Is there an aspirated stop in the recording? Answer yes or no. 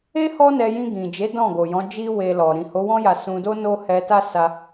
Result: no